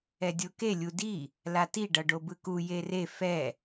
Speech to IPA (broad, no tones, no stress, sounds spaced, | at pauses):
ɛ dʲ o k e lʲ u d i | l a t i ɖ ʌ ɖ o b ɯ k u j e r e f ɛ